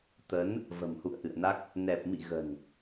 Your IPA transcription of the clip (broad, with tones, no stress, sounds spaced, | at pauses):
t̪ ə˨˦ n | v ə̤˨˩ m h ṵ˧˨ ə̯ ʔ ɨ̰˧˨ ə̯ n a˦˥ k̚ | n ɛ˨˩ p̚ m ḭ˧˨ ɣ ə̤˨˩ n